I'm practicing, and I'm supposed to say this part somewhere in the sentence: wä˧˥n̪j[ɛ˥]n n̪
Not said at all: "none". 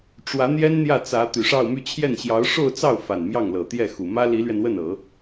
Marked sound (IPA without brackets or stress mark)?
ɛ˥